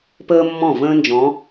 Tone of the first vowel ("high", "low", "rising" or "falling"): high